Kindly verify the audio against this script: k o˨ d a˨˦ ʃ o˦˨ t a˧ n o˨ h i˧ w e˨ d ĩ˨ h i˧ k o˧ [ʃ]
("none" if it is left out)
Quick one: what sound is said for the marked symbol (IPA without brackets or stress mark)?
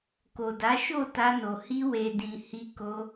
none